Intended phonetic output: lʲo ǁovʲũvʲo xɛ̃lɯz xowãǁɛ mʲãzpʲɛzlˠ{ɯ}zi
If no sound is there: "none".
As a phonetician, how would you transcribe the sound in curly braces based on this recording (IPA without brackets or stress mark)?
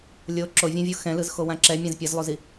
u